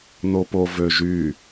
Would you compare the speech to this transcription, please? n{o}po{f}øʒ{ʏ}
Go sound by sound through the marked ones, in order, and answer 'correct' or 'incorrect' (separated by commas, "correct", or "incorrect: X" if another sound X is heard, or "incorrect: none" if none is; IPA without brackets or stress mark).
correct, incorrect: v, incorrect: y